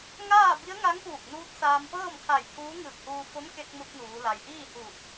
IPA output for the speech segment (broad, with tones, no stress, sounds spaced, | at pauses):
ŋ aː˥˨ b i˧˥ ə̯ ŋ a˧˥ ŋ p uː˧˩ k̚ n uː˧˥ t̚ s aː˧ m p ɤː˥˨ m kʰ a˧˩ j t̪ʰ uː˧˥ ŋ ɯː˧˩ k̚ h uː˧ f o˧˥ m k e˧ k̚ m u˧ t̚ n uː˩˧ l a˩ j ʔ iː˥˨ h uː˧˩ k̚